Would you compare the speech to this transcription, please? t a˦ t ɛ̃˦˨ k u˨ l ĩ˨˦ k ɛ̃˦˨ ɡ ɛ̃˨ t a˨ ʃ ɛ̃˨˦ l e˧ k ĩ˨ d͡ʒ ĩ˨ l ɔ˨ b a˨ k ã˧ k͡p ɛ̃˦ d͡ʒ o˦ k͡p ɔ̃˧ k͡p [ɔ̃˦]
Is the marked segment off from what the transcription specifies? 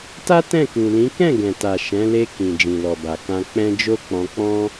no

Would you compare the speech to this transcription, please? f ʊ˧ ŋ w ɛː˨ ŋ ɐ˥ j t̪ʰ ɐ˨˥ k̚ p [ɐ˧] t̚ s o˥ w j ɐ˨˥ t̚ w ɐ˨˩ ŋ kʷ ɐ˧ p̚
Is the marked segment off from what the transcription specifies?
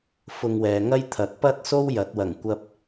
yes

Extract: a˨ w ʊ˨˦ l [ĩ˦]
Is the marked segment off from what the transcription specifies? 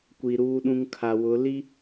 yes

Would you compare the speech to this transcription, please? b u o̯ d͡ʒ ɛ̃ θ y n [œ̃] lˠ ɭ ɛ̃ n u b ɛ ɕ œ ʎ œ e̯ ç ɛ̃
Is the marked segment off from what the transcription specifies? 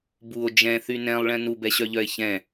yes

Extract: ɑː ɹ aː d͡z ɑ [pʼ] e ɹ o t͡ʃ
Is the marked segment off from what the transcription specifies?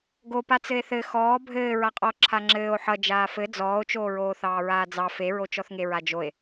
yes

